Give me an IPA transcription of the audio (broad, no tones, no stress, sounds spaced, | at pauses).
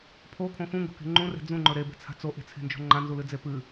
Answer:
pʰ o kʰ õ x ũ ŋ ɡ o̤ k e̤ ŋ͡ǃ ũ r e̤ d͡z ũ ŋ͡ǃ ɵ ɾ e b e̤ t͡sʰ a̤ t͡s o ʔ e̤ t͡sʰ e̤ n d͡ʒ o̤ ŋ͡ǃ ã n z u l ɨ d͡z e p ɨ